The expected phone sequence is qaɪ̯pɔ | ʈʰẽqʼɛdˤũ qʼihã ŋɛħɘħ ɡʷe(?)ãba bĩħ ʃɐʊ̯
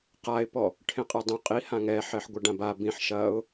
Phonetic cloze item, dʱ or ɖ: ɖ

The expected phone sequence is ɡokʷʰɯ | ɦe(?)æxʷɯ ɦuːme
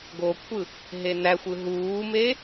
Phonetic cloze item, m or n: n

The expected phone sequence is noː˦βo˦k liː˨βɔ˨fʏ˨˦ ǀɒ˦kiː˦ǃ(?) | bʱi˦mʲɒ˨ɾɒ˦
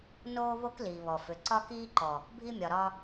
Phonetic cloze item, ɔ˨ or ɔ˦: ɔ˨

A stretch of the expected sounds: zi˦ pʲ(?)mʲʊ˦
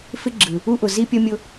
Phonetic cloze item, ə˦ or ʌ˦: ʌ˦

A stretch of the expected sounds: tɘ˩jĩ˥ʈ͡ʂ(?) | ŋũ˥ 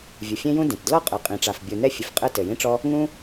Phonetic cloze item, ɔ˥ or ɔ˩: ɔ˥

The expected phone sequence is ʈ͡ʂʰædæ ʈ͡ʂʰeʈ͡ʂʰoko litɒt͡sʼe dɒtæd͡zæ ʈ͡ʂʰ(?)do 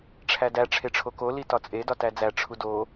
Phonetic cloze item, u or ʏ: u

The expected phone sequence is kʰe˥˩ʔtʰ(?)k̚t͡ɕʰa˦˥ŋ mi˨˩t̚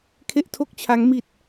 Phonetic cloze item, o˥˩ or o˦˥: o˥˩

